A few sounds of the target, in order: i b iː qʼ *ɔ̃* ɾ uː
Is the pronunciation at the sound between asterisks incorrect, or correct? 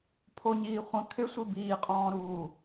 incorrect: ɔ̃ː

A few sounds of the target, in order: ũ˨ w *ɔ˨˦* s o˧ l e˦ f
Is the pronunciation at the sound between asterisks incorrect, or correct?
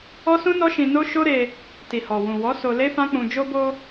correct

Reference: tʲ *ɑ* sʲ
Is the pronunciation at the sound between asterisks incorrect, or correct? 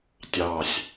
correct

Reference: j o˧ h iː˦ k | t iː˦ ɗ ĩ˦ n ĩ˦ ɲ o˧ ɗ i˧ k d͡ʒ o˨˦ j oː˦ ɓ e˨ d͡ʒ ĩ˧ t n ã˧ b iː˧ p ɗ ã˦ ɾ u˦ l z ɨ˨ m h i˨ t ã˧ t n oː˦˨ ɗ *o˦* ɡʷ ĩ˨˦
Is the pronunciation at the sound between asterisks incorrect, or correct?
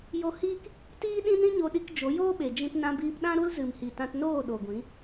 incorrect: o˨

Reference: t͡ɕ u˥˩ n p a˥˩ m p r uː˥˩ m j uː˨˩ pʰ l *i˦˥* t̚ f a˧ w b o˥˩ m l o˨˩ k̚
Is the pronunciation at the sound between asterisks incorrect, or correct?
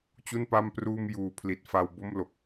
incorrect: i˨˩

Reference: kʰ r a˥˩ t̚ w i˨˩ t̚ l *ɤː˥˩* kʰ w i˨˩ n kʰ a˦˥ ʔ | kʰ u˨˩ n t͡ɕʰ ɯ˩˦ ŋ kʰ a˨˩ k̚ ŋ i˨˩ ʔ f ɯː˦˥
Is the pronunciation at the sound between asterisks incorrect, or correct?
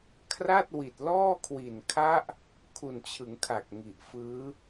incorrect: ɔː˥˩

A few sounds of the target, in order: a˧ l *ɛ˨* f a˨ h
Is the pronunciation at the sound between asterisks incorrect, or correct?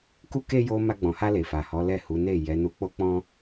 incorrect: e˨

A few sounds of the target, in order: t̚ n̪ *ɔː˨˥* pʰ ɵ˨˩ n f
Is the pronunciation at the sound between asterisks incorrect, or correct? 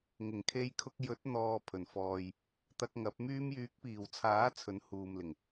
incorrect: ɔː˨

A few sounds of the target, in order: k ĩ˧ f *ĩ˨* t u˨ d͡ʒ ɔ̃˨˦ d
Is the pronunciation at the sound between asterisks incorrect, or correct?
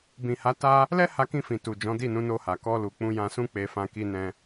correct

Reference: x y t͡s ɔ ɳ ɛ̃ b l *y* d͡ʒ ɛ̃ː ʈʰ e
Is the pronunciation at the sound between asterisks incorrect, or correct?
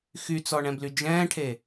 correct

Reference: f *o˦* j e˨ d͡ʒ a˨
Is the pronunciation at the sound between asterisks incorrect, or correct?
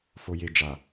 incorrect: o˨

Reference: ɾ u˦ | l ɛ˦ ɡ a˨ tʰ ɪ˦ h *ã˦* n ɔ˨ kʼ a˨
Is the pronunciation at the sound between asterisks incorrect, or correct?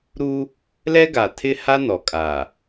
incorrect: a˦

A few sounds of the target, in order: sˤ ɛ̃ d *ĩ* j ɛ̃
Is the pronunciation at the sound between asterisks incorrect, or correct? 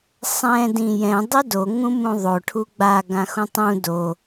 correct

